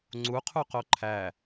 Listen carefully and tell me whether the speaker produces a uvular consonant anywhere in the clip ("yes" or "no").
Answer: yes